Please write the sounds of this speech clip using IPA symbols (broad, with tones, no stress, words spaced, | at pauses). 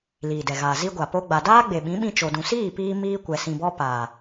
liː˨dɛ˨ɣaː˨ zi˧ɡʷa˨ po˦ɡ͡ba˧ daː˦ ɡ͡be˨ɓĩ˨˦ɓĩ˧ t͡ʃo˧dũ˧ siː˦˨piː˧ miː˧kʷɛ˨sĩ˨bɔ˧ paː˨